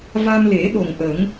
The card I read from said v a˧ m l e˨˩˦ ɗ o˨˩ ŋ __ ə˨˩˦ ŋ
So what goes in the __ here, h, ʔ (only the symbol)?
ʔ